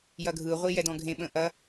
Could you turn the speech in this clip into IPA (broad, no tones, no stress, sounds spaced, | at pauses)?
j ɐ ɡʱ ɯ ʁʷ i j ɛ d ɔ̃ ɡʱ ẽ ɓ ə̃ ʔ ɐ